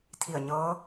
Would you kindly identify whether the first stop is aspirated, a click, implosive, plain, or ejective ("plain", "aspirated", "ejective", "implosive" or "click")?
aspirated